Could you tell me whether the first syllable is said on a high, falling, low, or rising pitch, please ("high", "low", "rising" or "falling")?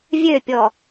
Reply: falling